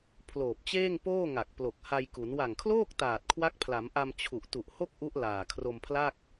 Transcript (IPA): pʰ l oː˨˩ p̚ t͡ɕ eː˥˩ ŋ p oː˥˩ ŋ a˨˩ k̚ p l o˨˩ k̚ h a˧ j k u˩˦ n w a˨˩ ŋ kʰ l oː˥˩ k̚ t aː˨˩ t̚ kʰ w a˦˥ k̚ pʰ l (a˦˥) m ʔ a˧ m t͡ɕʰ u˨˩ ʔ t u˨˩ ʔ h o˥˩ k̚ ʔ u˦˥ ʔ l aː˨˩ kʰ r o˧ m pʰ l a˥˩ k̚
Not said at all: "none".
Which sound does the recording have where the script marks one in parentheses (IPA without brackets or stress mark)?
a˩˦